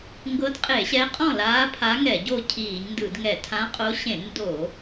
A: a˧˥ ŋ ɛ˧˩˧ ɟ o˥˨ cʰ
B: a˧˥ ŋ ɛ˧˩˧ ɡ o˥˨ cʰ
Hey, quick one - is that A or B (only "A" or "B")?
A